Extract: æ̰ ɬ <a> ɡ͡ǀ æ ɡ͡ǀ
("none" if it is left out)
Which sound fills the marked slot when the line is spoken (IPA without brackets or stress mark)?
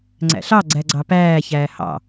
ɑ